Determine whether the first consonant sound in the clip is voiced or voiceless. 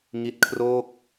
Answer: voiced